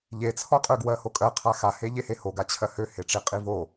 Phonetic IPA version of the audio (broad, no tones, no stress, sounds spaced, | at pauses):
ʎ e t͡sʰ ɔ qʼ ø ɡ w ɜ h o kʼ ɜ qʰ a x a h e ʎ e h e h o ɡ a t͡ɕʰ ɜ h ø h e ʈ͡ʂ i qʼ i v o